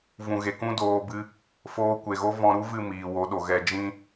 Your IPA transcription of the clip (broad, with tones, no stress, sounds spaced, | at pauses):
v ũ˨ ɣ e˨ k ũ˦ d oː˧ b ɨ˧ | f oː˧ kʷ e˨ ɣ o˦ v ɔ̃˧ ɾ u˦ v ɨ˦˨ m iː˨ w o˨˦ ɗ o˨ ɣ ɛ˧ d͡ʒ ĩ˦